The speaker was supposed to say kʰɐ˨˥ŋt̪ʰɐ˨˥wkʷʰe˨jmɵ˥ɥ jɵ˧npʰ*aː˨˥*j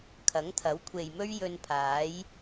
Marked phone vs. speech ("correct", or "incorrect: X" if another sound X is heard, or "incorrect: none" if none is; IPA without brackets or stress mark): correct